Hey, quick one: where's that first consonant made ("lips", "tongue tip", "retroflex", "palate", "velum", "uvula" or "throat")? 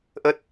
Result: throat